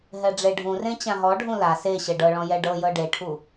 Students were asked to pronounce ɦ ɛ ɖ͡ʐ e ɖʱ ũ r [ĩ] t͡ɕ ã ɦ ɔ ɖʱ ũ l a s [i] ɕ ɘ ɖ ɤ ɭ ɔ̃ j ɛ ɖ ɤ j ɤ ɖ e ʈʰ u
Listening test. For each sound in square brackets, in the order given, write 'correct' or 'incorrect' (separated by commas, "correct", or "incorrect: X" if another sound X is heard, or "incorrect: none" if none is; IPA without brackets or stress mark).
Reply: incorrect: ẽ, incorrect: e